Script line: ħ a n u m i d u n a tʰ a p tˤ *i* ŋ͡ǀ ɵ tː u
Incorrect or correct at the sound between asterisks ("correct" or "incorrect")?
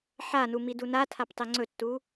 correct